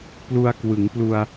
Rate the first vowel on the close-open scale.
close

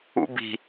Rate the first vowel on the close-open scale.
close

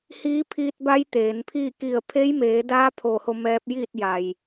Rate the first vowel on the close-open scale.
close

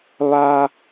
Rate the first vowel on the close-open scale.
open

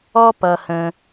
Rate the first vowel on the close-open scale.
mid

